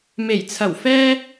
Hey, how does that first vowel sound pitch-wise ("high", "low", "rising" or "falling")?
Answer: low